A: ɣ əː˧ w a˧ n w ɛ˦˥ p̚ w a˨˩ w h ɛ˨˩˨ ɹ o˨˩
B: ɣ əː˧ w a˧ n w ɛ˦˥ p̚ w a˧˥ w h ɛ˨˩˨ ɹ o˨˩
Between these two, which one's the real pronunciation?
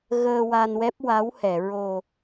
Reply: B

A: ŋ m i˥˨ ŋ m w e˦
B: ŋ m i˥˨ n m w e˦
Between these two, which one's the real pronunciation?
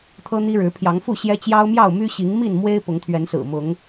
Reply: B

